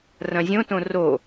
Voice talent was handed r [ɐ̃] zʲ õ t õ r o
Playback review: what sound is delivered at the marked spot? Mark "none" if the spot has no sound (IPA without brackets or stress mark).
ɐ̃